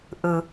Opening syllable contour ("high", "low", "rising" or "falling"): low